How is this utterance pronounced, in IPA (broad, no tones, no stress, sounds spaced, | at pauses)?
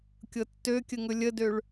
kʲ ɤ tː ø kʲ ə ŋ ɵ lʲ ə d ø ɭ